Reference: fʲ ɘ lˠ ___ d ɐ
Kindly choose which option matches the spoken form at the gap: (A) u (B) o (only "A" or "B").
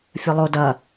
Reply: B